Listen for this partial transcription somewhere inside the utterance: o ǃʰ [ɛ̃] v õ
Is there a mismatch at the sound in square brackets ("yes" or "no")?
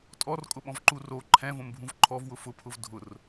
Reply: no